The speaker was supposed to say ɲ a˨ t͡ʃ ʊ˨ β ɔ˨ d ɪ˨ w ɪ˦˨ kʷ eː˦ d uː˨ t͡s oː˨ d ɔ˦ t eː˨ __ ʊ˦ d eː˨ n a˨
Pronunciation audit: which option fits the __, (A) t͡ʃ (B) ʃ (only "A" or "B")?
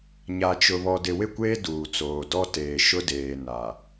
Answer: B